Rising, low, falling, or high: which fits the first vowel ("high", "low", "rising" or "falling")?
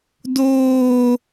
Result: high